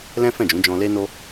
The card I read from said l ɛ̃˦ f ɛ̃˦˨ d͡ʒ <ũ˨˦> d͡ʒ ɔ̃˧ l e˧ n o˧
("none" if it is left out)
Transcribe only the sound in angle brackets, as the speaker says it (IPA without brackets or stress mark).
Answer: ũ˨˦